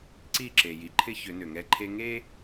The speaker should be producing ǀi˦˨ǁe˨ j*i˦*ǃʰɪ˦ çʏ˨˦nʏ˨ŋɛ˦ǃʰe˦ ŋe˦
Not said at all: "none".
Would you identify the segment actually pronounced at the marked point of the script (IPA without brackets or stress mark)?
i˨